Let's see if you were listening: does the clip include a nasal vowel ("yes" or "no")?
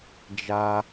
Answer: no